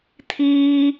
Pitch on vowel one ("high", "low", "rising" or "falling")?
high